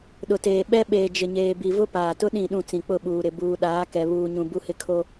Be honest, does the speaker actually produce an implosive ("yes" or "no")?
yes